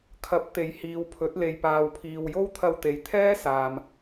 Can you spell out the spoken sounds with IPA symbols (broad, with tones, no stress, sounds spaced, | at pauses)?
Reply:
kʰ ɐ˨˥ p̚ t̪ e˨ j h iː˨˧ w pʰ ɵ˨˥ t̚ l e˧ j p aː˧ w pʰ iː˧ w j o˥ w t̪ʰ ɐ˧ w t̪ e˨˥ j t̪ʰ ɛː˥ s aː˨ m